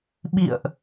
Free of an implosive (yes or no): no